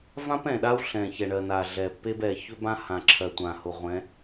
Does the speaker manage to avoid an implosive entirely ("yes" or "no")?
no